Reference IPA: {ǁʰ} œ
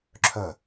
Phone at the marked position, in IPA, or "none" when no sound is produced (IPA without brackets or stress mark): ǁʰ